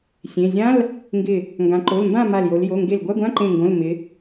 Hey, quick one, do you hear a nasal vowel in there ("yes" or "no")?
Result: yes